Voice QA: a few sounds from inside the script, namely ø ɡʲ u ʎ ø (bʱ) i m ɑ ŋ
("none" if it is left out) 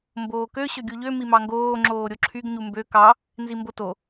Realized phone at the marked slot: m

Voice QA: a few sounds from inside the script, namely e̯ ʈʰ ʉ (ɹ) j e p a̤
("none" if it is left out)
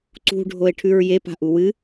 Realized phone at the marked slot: ɹ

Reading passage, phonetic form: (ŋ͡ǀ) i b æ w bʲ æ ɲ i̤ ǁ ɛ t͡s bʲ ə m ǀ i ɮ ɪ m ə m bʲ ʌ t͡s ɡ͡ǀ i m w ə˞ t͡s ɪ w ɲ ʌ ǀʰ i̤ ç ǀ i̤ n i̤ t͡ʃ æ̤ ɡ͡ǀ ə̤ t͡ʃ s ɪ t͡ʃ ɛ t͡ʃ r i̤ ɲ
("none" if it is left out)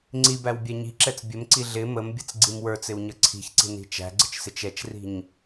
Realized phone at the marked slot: ŋ͡ǀ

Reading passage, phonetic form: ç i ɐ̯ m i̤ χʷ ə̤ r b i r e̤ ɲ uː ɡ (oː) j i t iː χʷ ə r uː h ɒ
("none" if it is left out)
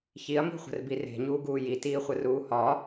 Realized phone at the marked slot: uː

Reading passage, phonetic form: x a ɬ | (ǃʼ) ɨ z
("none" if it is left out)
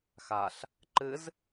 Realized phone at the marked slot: ǃ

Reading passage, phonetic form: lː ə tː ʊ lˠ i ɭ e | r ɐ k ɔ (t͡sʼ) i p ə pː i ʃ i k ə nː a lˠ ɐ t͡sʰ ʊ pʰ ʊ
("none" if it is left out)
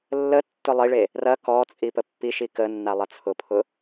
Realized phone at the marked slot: t͡sʼ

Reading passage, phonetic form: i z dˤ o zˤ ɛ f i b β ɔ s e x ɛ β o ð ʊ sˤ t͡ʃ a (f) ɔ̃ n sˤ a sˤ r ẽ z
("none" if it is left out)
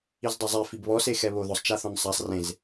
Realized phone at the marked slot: θ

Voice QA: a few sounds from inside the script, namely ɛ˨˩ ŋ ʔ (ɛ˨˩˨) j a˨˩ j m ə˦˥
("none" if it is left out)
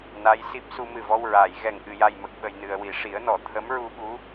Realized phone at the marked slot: ɨ˨˩˨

